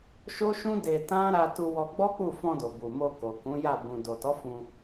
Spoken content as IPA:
ʃo˦ʃũ˦ de˧tã˦ ɾa˧tu˧wɔ˧ ɡ͡bɔ˦k͡pu˦˨fɔ̃˧do˨ bu˨mo˧ ko˨kũ˨˦ja˦˨ bũ˨ do˨tɔ˨˦ fũ˧

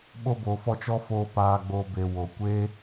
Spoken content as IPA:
ɓo˧ bo˨fɔ˧t͡ʃɔ˦foː˧ paː˨ɡ͡bo˨ be˨wo˨ kʷeː˦

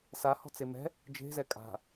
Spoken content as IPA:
sahɔ̤t͡se mɛ̤ | d͡ʒe̤zɛ kʼa̤

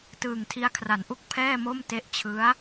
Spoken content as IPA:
tɯː˨˩ŋtʰi˦˥a̯kʰra˩˦nʔu˥˩k̚ pʰɛː˥˩mo˥˩m te˦˥ʔt͡ɕʰɯ˦˥a̯

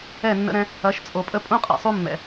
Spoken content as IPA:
ɛ˦˨nːə̰˦ɾɛ̃˦ | ɐ˨˦ʃt͡sʼo˨pʼə˦ pʼũ˦qʼɛ̰˨sˤu˦ mːɛ̰˨

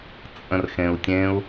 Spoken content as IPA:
t͡sʼə̃rxẽu̯tʲẽu̯

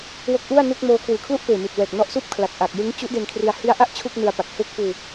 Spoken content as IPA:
wo˦˥k̚ʔu˥˩a̯nu˥˩k̚moː˦˥ kʰwɯː˨˩kʰlu˥˩ʔpeː˨˩mi˨˩t̚ wɛː˨˩k̚nɔ˦˥ʔsuː˥˩p̚ kʰla˨˩k̚ʔa˨˩k̚ jɯ˦˥ŋt͡ɕu˦˥ʔ de˧nkʰri˧a̯ hi˦˥a̯ʔa˥˩ʔ t͡ɕʰu˥˩k̚nɯ˧a̯pa˨˩k̚ he˥˩k̚ puː˧

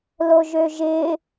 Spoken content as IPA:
loʒøʒɪ

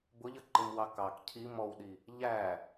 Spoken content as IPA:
bʊʎʌ ǃɪmwɑkɑk cʰi mɔwɗi | ʎæ

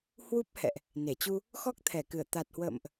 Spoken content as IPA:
hwu˦˥p̚hɛ̰˧˨ʔ | ne˧˩t͡ɕu˧ | xɔ˦˥k̚t̪ʰɛ˧˩kɨ˧˩ə̯ t̪a˨˩t̚hwə̰ː˧˨mʔ

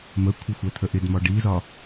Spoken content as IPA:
məkʷʰə xʷæt̪ʰəʔɪdmɒ ɖizɒ

